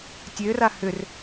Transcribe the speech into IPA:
tʲ ø r a h ʏ r

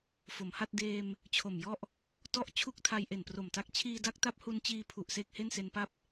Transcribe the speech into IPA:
f o˩˦ m h a˥˩ t̚ d eː˧ m | t͡ɕʰ o˨˩ m j ɔ˥˩ ʔ | t ɔ˥˩ ʔ t͡ɕʰ u˥˩ k̚ tʰ a˧ j ʔ e˨˩ n p r o˨˩ m t a˦˥ k̚ t͡ɕʰ iː˧ d a˦˥ k̚ t a˦˥ p̚ h u˧ n t͡ɕ iː˧ pʰ u˨˩ ʔ s eː˥˩ k̚ h e˥˩ n s e˧ n p a˥˩ p̚

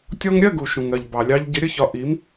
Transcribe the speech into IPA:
tʲ ɔ˧ ŋ ɾʲ ɜ˥˧ ɡ u˩ ʃ ũ˩ ŋ ɜ˩ ʎ b ɑ˩ lʲ ɑ˧ ʎ ɟ ɪ˨˥ ɾʲ ə˥˧ ç ɒ˧ ʔ i˨˥ m

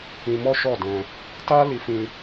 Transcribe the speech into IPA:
ĩ˧ m ɔ˦ ʃ ɔ˦˨ d ɛ̃˧ | t a˦ l i˧ f ĩ˧

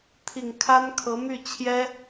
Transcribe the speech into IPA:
t̪ʰ i˨˩ ŋ kʰ a˥ n kʰ ɤ˧˥ m y˥˩ t͡ɕʰ j ɛ˥

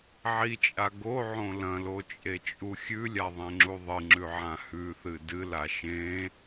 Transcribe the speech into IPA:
ʕ i t͡ʃʼ a ɡ o ʕ õ l ɐ̃ l o t͡ʃʼ e t͡ʃʼ u xʲ ʉ lʲ a ðˤ ẽ ŋ͡ǁ u ðˤ ɨ ŋ͡ǁ ʉ ʕ ã h ʉ θ ɨ d ɨ l a ʃ ẽ

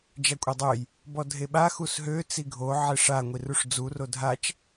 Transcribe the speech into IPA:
d͡ʒ a kʷʼ e dˤ ø j | b ɔ dʱ e ɓ a x u s ɦ ø t͡s i ɡʱ o ʕ e ʂ a ŋʷ i r u ʂ d͡z u r o dʱ a t͡ʃ

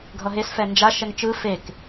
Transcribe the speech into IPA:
ɡʱ ʌ ɦ e s f ɛ n d͡ʒ a ʃ ɛ ŋ t͡ʃ ɯ f e k

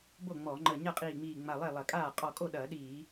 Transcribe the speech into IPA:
b o˥˩ ŋ͡m ɔ˧˩˧ ŋ͡ǃ ə˧˩ ɲ ɐ˥˩ qʼ iː˧˩ ŋ͡m iː˧˩ ŋ͡m a˧˩ lˠ e˥˩ lˠ ɐ˧˩˧ kʼ aː˥˩ qʼ ɔ˧˩ kʼ o˥˩ ɗ ɐː˧˩˧ ɗ iː˧˩˧

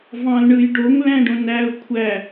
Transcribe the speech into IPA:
v ɑ̃ l ɳ ɯ j ɖ o ŋ l æ̃ ɖ õ n æ ʊ̯ kʷʰ æ

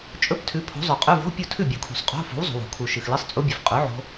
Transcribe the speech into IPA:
t͡ʃʼ ɵ˧˥˧ p tʰ ʉ˨˥ pʰ o̤˨˥ zˤ ɵ˨˩˦ qʼ ʉ˧˥˧ v o̤˧˥˧ pʲ o˥˩ tʰ ʉ˥˩ bʲ u˨˩˦ kʰ ṳ˨˩˦ sˤ qʼ o̤˧˥˧ f o̤˨˥ w zˤ o̤˨ w o̤˨˩˦ kʰ u˨ ʃ ɨ˨ x l ɨ˧˥˧ sˤ t͡sʼ u˦˥ bʲ ɨ˨˥ f qʼ ʉ˨˥ ʕ o̤˦˥

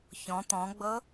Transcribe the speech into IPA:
ç ɔ̃ t̪ ɔ̃ ɡ͡b ɤ

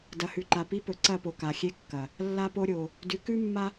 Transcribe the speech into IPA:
d ɐ˨ h ʉ˨ ǃ a˨ p i˦ p ɵ˨ ǀ ɐ˦˨ p o˨ k a˨ xʲ e˦ kː ɐ˨ | lː a˦ p o˦ ɾʲ o˨ | d ʉ˨˦ k ʉ˦ mː a˦

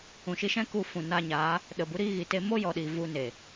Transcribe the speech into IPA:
ũ˨ ʃ i˧ ʃ ɛ̃˦ k u˧ f ũ˨ n a˧ ɲ aː˨˦ | ɗ ə˨ b u˨˦ ɾ iː˧ ɣ i˨ t e˧ m o˦ j ɔ˨ ɗ iː˨ v u˧ n e˨

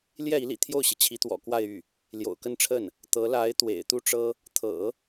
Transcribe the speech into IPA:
l j ɛ˥˩ i˧˥ l ḭ˨˩ t̪ʰ j o˥˩ ʊ̯ ɕ i˩ t͡ɕʰ i˧˥ t̪ w ɔ̰˨˩ k w a˥˧ ɪ̯ y˥˩ | l j o̰˨˩ ʊ̯ k ə˥˧ n ʈ͡ʂʰ ə˥˩ n | t̪ ɤ˧˥ l a˧˥ ɪ̯ t̪ w ḛ˨˩ ɪ̯ t̪ u˥˩ ʈ͡ʂ ɤ˥ | t̪ʰ ɤ̰˨˩˦

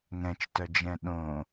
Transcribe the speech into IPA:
ŋ ɛ̃ t͡ʃ t œ d͡ʒ ɛ̃ ɗ õ

